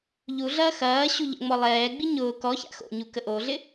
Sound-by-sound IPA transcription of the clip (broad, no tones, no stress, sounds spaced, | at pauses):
ʎ u ɮ ɐː x ɐː ɕ u ʎ ə̰ ŋ͡m ɔ lˠ ɛː ɡ͡b i ɲ ʊː k ɔ ç a̰ x o̰ ɲ u k ə ʔ o ɮ ɪ